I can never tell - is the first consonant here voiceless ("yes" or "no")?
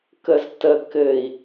yes